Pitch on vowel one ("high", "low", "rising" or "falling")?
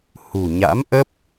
low